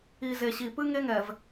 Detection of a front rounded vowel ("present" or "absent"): absent